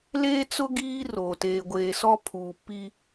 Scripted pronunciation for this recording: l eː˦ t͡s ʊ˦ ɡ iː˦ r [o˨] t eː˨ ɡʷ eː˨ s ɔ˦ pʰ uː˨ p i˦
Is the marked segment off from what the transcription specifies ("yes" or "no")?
no